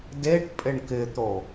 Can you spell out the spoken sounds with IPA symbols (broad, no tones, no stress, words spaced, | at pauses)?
deʈ pʼɪɳkɪt̪o